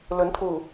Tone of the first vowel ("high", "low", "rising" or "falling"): rising